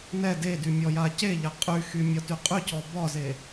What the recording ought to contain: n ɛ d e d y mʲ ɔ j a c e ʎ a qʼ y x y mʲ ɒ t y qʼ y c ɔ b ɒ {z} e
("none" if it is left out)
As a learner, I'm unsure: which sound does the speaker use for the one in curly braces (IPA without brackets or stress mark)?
z